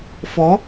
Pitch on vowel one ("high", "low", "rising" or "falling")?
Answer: rising